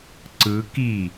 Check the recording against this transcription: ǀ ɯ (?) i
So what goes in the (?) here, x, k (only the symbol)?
k